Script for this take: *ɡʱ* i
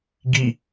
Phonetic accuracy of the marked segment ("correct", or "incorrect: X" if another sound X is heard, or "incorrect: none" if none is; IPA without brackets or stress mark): incorrect: ɡ